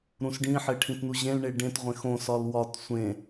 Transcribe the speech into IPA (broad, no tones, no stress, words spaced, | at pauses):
ɾũsɖĩħe ʈʰĩtnuʑẽlɳe ɖẽtʁʷẽ xõsɒl wɒt sʷẽ